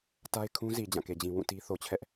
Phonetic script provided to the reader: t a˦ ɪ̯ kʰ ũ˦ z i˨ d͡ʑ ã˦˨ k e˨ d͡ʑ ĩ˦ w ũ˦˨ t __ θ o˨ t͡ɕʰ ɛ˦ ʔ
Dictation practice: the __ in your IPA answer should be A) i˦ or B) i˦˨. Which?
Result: A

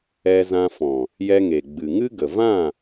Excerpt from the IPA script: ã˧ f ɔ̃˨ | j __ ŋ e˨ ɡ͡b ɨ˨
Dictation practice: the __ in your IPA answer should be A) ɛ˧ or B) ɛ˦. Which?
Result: A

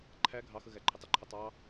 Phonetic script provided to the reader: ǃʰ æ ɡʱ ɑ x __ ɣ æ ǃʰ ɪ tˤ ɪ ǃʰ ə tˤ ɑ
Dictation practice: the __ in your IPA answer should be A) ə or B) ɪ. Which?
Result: A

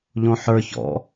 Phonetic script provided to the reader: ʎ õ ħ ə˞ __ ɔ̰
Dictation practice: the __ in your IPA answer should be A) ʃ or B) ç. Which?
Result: B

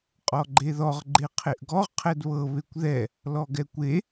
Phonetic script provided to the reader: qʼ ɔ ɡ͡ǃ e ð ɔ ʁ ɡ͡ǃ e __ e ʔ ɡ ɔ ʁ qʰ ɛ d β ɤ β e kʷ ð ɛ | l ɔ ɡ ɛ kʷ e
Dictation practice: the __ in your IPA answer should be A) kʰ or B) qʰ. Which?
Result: B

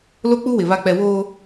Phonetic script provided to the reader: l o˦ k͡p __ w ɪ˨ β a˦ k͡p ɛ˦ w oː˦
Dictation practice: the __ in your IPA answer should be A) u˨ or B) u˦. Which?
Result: B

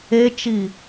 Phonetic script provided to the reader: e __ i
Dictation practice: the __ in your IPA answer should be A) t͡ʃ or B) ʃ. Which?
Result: A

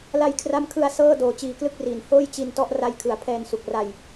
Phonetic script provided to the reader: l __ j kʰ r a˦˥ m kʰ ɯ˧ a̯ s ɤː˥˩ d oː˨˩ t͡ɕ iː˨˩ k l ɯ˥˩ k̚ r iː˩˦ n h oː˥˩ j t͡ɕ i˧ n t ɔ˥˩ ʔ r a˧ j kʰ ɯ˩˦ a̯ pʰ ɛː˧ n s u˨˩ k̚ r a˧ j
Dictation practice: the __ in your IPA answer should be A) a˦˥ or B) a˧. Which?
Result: B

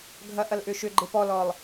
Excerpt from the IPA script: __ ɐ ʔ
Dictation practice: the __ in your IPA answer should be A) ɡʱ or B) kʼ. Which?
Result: A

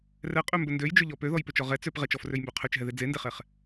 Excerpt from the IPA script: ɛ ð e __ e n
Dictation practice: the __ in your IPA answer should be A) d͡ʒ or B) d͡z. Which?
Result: B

